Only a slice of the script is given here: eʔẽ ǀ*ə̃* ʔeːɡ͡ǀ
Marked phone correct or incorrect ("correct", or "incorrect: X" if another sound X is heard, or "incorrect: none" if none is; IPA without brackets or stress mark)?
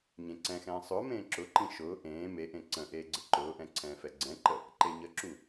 correct